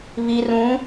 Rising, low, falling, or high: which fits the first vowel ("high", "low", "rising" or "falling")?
low